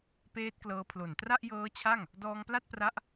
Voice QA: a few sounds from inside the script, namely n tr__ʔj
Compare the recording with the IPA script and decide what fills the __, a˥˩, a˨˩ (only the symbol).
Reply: a˥˩